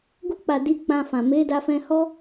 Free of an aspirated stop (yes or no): yes